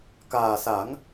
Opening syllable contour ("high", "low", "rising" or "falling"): low